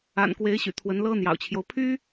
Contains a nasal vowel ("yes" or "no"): no